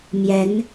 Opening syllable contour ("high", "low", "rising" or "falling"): rising